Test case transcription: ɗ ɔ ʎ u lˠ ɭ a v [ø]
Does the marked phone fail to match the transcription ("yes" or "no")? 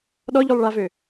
no